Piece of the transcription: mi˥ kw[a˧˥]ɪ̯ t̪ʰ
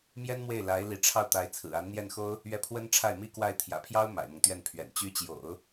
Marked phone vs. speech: incorrect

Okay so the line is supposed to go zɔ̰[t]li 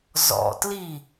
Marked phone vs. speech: correct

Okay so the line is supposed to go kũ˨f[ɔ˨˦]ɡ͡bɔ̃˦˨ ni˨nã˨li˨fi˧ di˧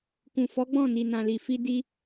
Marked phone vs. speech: correct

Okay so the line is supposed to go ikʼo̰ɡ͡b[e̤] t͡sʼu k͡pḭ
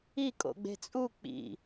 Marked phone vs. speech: correct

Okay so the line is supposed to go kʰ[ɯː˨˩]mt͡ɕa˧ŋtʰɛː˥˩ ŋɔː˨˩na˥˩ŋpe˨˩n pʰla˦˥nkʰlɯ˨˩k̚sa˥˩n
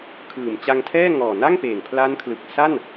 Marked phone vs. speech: correct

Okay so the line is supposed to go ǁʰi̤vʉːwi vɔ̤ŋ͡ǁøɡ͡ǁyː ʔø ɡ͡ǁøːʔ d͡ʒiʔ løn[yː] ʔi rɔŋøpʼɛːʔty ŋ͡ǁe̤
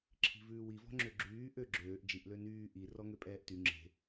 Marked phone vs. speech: correct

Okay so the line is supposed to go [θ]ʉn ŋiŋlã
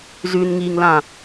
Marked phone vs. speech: incorrect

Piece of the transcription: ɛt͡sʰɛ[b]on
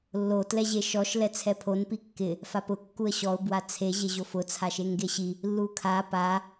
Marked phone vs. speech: incorrect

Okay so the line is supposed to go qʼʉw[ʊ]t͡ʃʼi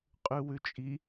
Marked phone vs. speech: incorrect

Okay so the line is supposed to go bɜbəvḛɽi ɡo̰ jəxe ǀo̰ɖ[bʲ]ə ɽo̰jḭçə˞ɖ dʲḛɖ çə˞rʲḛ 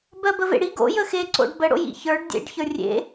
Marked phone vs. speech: incorrect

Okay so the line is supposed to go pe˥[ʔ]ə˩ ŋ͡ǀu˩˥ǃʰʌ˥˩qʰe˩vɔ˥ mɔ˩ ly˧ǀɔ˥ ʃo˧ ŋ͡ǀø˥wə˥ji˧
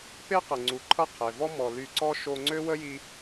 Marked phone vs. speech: incorrect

